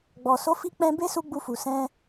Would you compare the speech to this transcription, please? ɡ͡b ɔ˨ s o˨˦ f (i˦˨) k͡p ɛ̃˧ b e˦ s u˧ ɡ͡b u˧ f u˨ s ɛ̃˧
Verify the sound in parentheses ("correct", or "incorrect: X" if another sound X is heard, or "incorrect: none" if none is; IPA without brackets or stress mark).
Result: incorrect: i˧